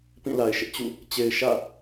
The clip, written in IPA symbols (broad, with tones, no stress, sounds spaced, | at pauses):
p ĩ˦˨ l a˨ ɪ̯ ʃ ɪ˦ ʔ t͡ɕ ṵ˦˨ | t͡ɕ e˨ ɪ̯ ʃ ä̰˦˨